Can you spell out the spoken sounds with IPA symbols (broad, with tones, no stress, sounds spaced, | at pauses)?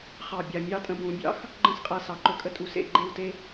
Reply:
χ ɑ˧˩ bʲ a˧˩ mʲ ɑ˥˧ tʼ ə̃˧ b ũ˩˧ bʲ ɑ̰˥ x | ɡ͡ǃ ə̃˥˧ s qʼ a˧ s ɑ˩˧ ǃ ɵ˧ kʼ ə˥˧ tʼ u˧˩ s ḛ˥˧ ɡ͡ǃ e˥˧ w t e˥